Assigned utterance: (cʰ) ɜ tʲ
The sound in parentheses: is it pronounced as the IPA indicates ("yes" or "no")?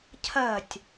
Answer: yes